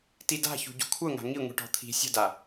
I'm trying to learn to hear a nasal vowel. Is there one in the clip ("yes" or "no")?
no